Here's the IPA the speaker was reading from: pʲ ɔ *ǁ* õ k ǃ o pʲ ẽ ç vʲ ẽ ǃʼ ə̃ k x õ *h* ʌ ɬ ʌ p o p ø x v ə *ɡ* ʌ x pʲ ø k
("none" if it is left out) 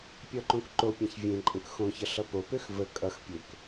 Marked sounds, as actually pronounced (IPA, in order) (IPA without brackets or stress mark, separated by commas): ǃ, ç, kʼ